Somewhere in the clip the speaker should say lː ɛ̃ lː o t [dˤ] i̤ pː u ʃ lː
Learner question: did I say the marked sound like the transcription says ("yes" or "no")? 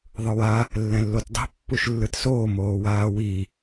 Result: yes